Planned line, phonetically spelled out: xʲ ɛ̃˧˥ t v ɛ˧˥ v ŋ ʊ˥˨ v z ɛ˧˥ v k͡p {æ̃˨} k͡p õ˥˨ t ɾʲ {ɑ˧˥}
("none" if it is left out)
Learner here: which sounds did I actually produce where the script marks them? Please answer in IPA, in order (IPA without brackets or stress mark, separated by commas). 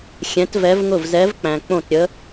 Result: æ̃˨, ə˧˥